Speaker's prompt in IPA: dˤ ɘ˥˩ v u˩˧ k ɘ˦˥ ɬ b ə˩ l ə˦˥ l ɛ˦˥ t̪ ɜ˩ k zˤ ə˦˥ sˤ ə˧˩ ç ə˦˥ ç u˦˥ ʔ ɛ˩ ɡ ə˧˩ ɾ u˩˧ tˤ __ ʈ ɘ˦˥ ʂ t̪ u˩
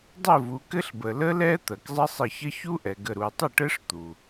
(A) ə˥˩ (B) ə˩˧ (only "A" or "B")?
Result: A